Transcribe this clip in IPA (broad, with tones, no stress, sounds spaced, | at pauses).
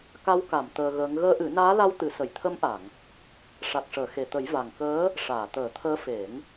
k a˧˥ w k a˨˩˨ m t̪ əː˧ ɣ əː˧˥ ŋ ɣ əː˧˥ ʔ ɨ˨˩˦ n aː˧˥ l a˧ w t̪ ɨ˨˩˦ s ə˨˩˨ j t̪ʰ ə˧˥ m ʔ a˨˩˨ ŋ | ʂ a˨˩ k̚ ʂ əː˨˩˨ x e˨˩˨ t̪ ə˨˩˦ j v a˨˩ ŋ k əː˧˥ | ʂ aː˨˩˨ t̪ əː˨˩˦ t̪ʰ əː˧˥ f e˨˩˦ ŋ